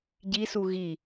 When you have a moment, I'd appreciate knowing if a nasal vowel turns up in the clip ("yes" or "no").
no